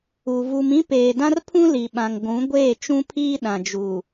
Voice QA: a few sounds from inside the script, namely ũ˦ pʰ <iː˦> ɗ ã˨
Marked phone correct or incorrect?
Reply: correct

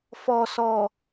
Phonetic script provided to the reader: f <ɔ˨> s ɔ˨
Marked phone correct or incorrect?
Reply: correct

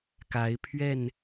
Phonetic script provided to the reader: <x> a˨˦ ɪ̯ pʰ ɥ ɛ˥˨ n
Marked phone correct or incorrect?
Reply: incorrect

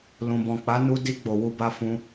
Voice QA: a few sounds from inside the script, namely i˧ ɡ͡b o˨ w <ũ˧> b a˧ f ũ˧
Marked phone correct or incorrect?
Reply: incorrect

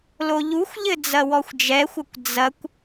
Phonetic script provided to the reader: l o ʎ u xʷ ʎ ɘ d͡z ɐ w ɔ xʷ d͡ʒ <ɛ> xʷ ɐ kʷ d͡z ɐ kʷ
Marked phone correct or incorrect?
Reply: correct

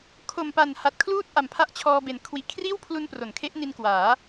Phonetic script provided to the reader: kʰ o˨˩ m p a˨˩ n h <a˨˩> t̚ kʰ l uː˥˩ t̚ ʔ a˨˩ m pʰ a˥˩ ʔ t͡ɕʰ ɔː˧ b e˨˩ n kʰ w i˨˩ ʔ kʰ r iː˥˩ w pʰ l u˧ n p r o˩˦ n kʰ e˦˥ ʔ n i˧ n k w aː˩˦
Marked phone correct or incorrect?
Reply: correct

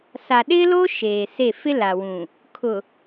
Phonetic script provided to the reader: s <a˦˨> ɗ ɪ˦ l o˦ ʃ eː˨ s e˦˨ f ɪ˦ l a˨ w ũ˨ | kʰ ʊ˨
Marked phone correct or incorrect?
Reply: incorrect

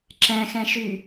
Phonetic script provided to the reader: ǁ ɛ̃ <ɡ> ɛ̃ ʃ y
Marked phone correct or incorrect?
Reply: incorrect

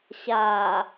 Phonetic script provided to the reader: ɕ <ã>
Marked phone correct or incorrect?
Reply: incorrect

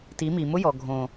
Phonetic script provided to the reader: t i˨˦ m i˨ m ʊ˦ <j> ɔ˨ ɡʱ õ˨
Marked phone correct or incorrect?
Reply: correct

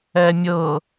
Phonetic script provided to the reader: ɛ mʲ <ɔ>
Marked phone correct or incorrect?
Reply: incorrect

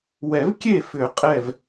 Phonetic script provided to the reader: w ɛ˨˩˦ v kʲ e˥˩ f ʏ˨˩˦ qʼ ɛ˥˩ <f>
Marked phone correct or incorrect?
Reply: incorrect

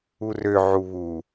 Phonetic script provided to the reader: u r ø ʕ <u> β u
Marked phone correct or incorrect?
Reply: correct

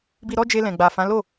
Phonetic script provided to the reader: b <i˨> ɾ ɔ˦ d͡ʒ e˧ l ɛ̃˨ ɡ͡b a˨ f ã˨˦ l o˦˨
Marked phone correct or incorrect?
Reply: incorrect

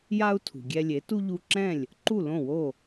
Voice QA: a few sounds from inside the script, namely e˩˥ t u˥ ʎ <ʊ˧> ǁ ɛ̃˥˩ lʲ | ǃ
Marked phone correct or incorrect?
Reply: incorrect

